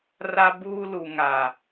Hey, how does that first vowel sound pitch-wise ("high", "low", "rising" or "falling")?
high